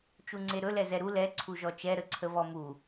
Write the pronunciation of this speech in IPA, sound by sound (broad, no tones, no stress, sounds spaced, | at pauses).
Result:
t͡ʃ u ŋ͡ǀ e ɾ ɵ l ɛ z ɛ ɾ u l ɛ ǀʰ u ʒ ɔ t͡ʃ ɛ ɾ ə ǀʰ ə v ɔ m u